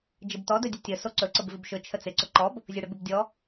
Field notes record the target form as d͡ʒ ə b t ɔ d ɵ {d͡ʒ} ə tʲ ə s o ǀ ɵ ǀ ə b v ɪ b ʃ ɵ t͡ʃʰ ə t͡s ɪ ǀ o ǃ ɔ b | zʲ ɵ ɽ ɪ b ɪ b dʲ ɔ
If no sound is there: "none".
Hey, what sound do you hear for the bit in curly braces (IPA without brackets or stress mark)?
dʲ